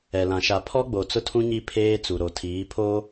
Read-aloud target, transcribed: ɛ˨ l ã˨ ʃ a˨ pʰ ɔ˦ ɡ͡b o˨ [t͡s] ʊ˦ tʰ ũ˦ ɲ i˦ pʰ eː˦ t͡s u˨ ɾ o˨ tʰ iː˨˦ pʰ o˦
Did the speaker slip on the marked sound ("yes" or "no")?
no